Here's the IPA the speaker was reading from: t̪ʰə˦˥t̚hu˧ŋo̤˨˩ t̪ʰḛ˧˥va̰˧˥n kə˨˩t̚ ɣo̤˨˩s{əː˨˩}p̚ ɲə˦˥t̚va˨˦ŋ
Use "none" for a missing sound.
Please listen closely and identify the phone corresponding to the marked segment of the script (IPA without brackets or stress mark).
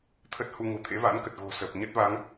əː˨˩